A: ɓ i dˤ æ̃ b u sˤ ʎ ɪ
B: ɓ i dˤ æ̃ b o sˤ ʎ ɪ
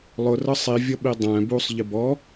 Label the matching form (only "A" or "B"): A